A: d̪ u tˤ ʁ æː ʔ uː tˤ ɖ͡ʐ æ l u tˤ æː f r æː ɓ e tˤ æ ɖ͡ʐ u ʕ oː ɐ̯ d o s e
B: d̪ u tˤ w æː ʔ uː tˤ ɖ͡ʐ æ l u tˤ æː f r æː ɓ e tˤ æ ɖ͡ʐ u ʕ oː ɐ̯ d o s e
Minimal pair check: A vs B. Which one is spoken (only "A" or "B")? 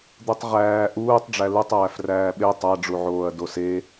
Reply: A